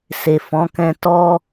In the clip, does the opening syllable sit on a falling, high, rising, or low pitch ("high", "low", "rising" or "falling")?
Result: low